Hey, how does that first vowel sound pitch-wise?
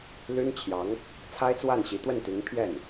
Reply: high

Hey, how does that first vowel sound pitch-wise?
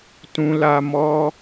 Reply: high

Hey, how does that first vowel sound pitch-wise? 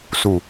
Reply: low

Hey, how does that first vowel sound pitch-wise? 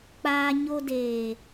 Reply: high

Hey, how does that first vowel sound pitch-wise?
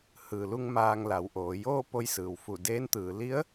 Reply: low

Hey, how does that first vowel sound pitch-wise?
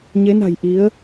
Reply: rising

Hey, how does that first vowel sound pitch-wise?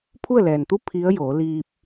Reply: falling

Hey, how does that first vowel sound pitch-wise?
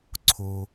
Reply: low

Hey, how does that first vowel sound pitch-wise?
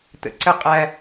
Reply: low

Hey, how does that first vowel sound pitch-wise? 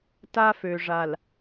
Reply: high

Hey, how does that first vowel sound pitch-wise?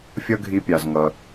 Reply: high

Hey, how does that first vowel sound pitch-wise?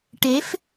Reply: rising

